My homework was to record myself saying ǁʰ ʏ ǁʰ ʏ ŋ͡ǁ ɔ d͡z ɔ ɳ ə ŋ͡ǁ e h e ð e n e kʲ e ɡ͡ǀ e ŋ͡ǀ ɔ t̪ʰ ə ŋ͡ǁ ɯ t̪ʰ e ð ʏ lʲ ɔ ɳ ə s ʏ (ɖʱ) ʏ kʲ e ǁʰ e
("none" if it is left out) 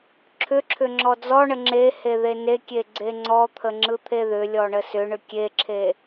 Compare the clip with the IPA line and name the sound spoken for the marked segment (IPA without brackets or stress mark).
ɳ